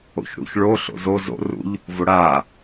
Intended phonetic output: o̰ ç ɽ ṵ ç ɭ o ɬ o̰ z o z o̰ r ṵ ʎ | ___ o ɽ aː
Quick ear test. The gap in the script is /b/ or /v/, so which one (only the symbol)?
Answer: v